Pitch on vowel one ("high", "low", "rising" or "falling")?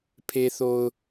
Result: low